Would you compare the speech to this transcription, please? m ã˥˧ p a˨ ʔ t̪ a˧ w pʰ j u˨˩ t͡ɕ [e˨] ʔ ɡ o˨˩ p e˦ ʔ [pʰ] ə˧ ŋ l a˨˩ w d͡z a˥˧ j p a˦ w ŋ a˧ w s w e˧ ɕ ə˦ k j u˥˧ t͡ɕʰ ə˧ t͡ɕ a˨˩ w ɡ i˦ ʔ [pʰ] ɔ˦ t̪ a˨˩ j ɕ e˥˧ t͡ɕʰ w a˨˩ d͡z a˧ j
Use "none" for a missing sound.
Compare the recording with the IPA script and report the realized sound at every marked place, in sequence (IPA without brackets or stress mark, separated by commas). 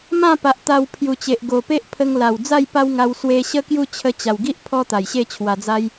e˨, pʰ, pʰ